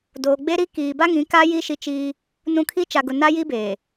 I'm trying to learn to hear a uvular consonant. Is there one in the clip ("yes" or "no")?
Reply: no